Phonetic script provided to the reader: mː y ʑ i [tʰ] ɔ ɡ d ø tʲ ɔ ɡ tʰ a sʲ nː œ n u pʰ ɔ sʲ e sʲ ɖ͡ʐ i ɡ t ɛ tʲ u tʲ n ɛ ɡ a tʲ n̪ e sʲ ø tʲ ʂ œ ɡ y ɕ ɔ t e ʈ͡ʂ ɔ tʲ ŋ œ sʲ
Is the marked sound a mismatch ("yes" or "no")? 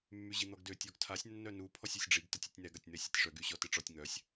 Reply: yes